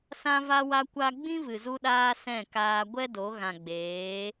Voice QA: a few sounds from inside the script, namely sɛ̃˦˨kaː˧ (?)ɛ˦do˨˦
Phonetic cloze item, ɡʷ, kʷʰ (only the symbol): ɡʷ